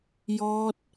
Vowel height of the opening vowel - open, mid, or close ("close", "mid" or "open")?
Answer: mid